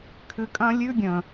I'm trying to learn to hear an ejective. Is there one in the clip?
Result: yes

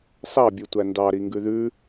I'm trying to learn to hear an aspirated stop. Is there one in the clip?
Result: no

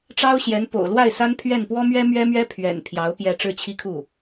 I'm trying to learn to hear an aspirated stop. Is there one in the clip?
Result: yes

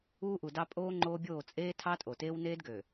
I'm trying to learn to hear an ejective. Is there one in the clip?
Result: yes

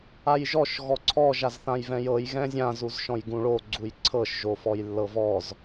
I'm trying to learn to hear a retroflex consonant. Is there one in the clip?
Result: yes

